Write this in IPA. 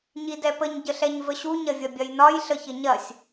ɲ i d ɛ p ə ɲ ɟ ə ɬ ɛ ɲ v ə ɕ u ɲ ɐ vʲ ɐ bʲ ɐ j n ɒ j ɬ ə ç ɘ ɲ ɐ sʲ

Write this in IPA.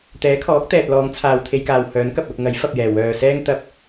t̪ ɛː˨˥ kʰ ɔː˨˥ k̚ t̪ ɛː˨ t̚ l ɔː˨˧ ŋ t͡sʰ aː˨ w t̪ʰ e˧ j k aː˨ w h œː˨˥ n k ɐ˨ p̚ l ʊ˧ k̚ ŋ ɐ˨˥ j f ɐ˨ p̚ j ɛː˨˩ w œː˨ s ɛː˥ ŋ t̪ ɐ˧ p̚

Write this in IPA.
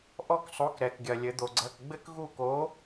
ʔ ɔ˦˨ k sˤ o˨˥ k ɾ ɛ˩ k ɡʲ ɐ˩ lʲ ɘ˩˧ d̪ o˩ ɡ͡ǀ ɐ˩˧˩ k ɡ͡b ɘ˦ k ɣ u˦˨ k o˨˥

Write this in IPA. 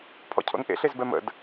pʰ ɔ̰ cʰ o̰ n ʔ ḛ ɬ e z b ɛ m ə̰ d

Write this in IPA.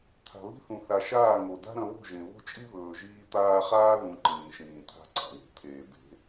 t̪ʰ a̤˨ β i̤˦ θ ũ˨ θ a˨ ʃ aː˦˨ ŋ o˨ d a̤˦ ɾ ɐ̃˧ β o̤˦˨ ʒ ẽ˨ β o̤˦ t͡ʃʼ i˦ β ɵː˨ ʒ iː˧ t̪ aː˧ χ aː˦ ð ũ˧ ǃ ĩː˨ ʃ ĩː˨ t̪ʰ a̤˦ ǀ a̰˨ w e̤˨ t̪ʰ eː˨ b e̤˨˦

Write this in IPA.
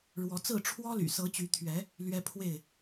ɻ w ɔ˨˦ t͡s ɹ̩˥˨ ʈ͡ʂʰ w ɔ˦ l y̰˨˩ s ɤ˨˦ t͡ɕ y˨˦ t̪ʰ ɥ ɛ˨˦ | l ɥ ɛ˦ pʰ w e˥˨ ɪ̯

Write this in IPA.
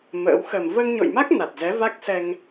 m ə̰ː˧˥ w x əː˨˩ m v əː˧ ŋ ɲ o̰˧˨ j m a˦˥ k̚ n a˨˩ t̚ z ɛ˨˦ v a˦˥ k̚ s ɛ˧ ŋ

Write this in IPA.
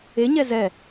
e ɲ ɛ z ɛ

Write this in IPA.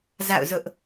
z a̰˦˨ ʊ̯ z ʊ˦ ʔ

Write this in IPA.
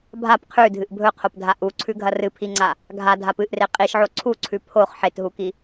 bʱ a p qʰ ʉ dʱ ɨ ʔ bʱ ɵ qʰ o p dʱ a ʔ u ǀʰ ʉ ɡʱ ɐ r ɨ pʰ i ŋ͡ǀ a | ɡʱ a dʱ a p ɨ ʔ r e qʼ i ʃ ʕ o ǀʰ u ǀʰ ʉ pʰ o χ ħ e t ɦ u k i

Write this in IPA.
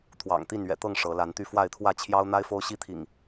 t̪ʰ w ɑ̰˨˩ ŋ t̪ i˥˨ n ɥ ɛ̰˨˩ t̪ ɤ˥˨ ŋ ʂ ɤ˨˦ l a˨˦ n t̪ y˥˨ f w a˥˨ ɪ̯ t̪ʰ w ä˥˨ t͡ɕʰ j ɑ˦ ʊ̯ n̪ a˦ ɪ̯ f o˦ ʊ̯ ɕ i˦ t̪ʰ ḭ˨˩ ŋ

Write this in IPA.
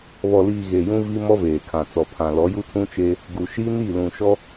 β ɔ˨ l iː˨ ɣ e˨ j ũ˦ v i˦ m ɔ˦ v eː˨ kʰ ã˨ t͡s ɔ˨ pʰ ã˨ l ɔ˨˦ j u˦ tʰ ũ˦ t͡ʃ eː˦ | ɡ u˨ ʃ i˦ n i˦˨ l ũ˨ ʃ ɔ˦

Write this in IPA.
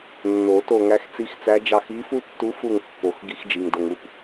nː o˨˩˦ t o˦˨ ŋ æ˧˥ x t͡s i˧˥ x t͡s æ˧˥ d͡ʒ ɑ˦˨ x i˧˥ f u˥ tː u˧˥ f u˦˨ ŋ pː o˨˩˦ x ɡ i˧˥ x d͡ʒ i˩ ŋ d o˩ ŋ u˦˨ p

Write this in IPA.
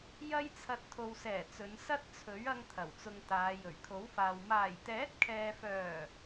j ɐ˥ j t͡sʰ ɐ˧ t̚ t̪ʰ o˨ w s ɛː˨˩ t͡s ɵ˨˧ n s ɐ˥ t̚ t͡sʰ ɵ˨˥ ɥ ɐ˥ ŋ t̪ʰ ɐ˨˩ w t͡s ʊ˧ ŋ t̪ aː˨˧ j ɵ˨˩ ɥ kʰ o˨˥ w f aː˨ w m aː˨˩ j t̪ ɛː˨˥ t̚ kʰ ɛː˨ f œː˨˩

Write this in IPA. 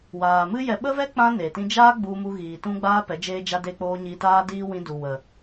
w aː˨ m ɨ˦ j ɛ˧ ɓ ə˦ v ɛ˦ k͡p ã˧ n e˨ t ĩ˦ d͡ʒ aː˦ ɡ͡b u˧ m u˧ ɣ iː˨ t ũ˦ ɡ͡b aː˦ p ɛ˨˦ d͡ʒ eː˧ d͡ʒ a˧ d e˧ k͡p oː˧ ɲ i˧ t aː˦ d iː˦ w ĩ˧ d u˨ w ə˨

